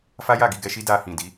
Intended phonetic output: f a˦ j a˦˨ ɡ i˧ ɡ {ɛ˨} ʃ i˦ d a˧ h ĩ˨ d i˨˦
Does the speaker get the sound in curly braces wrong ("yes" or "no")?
yes